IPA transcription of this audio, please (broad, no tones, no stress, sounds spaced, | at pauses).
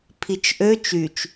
pʰ i t͡ʃ ʔ ø t͡ʃ y t͡ʃ